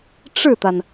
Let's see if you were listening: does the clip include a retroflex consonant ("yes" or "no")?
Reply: yes